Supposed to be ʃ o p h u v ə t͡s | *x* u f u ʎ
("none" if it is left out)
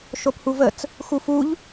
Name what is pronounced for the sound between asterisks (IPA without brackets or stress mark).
x